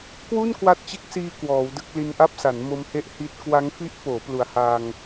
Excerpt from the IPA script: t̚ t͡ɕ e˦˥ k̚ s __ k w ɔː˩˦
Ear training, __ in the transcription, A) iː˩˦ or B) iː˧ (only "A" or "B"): B